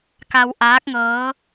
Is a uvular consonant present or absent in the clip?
absent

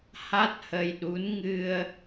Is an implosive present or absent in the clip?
present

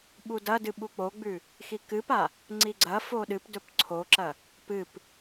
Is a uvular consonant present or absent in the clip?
absent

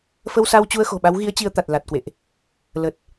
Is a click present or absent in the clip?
absent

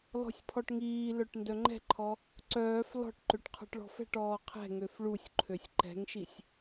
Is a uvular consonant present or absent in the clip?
present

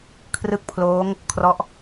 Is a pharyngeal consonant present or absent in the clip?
absent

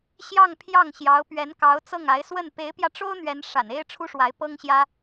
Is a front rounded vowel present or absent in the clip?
absent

